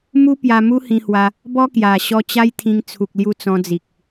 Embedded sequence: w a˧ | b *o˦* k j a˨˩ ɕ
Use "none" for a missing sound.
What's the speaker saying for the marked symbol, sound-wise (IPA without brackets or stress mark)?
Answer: ɔ˦